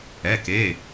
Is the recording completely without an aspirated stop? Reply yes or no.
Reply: yes